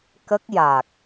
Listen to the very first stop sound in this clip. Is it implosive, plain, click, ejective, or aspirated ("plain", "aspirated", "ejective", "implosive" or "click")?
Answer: plain